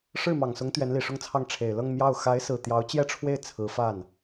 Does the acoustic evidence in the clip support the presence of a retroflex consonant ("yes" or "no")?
yes